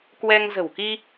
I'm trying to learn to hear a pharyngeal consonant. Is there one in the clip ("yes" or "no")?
no